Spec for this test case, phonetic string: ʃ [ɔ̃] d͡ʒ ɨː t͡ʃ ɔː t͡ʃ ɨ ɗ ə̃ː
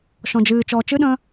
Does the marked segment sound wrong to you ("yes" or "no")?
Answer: no